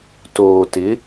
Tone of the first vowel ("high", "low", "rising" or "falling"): low